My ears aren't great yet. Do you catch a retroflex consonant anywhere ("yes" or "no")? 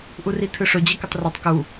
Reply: yes